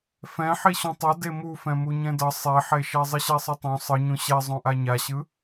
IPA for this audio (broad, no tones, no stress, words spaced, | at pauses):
fɛ̃ ħiɕũtˤʌ demufɛ̃ muɲɛ̃dʌ sˤeħeʃɛ zˤɯɕɛsˤɯtˤõ sˤɯɲũ ɕɛ zˤõʔaɲaɕɯ